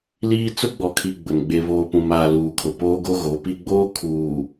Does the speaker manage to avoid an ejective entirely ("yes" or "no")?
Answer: yes